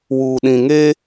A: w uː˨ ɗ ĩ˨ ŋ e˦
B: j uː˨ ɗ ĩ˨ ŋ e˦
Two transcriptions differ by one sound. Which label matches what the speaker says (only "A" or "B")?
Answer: A